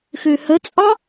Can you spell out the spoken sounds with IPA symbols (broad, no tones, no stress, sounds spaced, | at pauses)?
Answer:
x ø h ə t͡sʼ ɒ